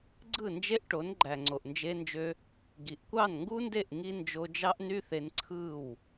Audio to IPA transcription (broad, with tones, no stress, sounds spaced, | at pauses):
ɡ͡ǀ ɯ˦˨ n d͡ʒ e˦ ʔ ʈ o˨˦ n ɡ͡ǃ æ˨ ŋ͡ǀ o˨ ʔ n d͡ʒ e˧ n d͡ʒ ø˧ | ɡ i˨ ʔ kʷ ɑ˦˨ n ŋ ɡ u˦ n d e˦˨ ʔ ŋ i˦ n d͡ʒ o˧ d͡ʒ ɑ˦ ʔ n y˦ θ e˧ n ǀʰ ɯ˦˨ w